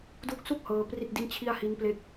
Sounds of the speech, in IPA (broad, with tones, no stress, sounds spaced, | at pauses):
d u˦˥ k̚ s u˥˩ k̚ h ɤː˧ p r i˥˩ t̚ d i˥˩ n t͡ɕʰ i˥˩ a̯ h i˦˥ n p l e˥˩ k̚